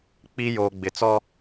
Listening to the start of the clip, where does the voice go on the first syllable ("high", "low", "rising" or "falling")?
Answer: high